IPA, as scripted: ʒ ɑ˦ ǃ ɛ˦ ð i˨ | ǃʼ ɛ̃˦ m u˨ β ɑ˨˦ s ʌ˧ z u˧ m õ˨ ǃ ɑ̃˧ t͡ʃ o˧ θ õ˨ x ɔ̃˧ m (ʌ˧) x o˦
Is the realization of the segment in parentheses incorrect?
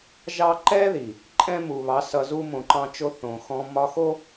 yes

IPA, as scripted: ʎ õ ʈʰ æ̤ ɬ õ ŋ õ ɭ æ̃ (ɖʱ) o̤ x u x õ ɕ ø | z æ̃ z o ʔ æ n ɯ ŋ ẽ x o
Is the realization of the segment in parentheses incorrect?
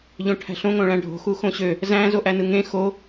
no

